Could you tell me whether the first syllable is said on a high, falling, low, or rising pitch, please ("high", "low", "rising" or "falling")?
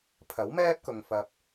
rising